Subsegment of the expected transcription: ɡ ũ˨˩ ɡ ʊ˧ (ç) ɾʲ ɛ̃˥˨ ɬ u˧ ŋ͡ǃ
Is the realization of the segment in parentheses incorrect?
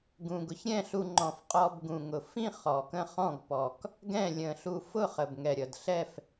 no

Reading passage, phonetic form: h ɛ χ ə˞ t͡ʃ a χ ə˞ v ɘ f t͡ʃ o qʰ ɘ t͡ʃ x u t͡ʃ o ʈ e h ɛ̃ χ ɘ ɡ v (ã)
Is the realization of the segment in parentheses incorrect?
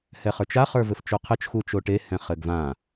no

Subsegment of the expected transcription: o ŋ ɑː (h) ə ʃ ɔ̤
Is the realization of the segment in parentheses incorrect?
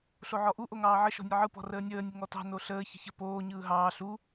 yes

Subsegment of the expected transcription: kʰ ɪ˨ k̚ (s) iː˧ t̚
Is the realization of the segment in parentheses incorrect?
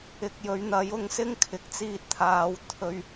yes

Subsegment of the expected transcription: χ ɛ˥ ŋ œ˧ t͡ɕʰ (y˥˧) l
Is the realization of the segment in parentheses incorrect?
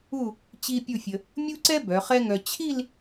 yes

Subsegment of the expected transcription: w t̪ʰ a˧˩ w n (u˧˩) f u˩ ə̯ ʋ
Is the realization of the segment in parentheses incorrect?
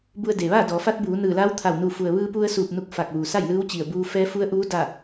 no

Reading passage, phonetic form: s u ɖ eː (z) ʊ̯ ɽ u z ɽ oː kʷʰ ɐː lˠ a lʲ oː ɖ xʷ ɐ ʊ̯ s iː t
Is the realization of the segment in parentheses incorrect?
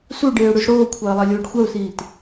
yes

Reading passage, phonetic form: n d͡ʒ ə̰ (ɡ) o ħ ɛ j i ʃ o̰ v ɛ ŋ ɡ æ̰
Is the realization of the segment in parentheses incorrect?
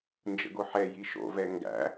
no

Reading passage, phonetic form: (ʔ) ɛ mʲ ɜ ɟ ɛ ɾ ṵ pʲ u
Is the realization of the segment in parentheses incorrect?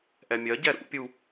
no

